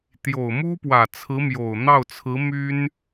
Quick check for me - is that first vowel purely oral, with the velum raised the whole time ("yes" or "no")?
yes